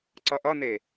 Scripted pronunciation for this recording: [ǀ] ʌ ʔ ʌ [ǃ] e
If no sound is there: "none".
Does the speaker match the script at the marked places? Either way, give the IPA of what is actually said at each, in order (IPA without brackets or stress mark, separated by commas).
ǀ, n